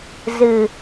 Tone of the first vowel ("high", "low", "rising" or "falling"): low